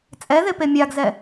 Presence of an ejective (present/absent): present